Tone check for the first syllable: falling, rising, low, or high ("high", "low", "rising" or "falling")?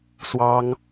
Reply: high